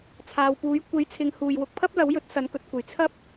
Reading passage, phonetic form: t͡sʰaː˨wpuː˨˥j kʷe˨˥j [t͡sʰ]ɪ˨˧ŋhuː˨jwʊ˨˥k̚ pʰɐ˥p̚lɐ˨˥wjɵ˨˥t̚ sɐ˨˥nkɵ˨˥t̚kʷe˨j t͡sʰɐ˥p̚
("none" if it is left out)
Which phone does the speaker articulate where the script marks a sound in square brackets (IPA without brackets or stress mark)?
t͡sʰ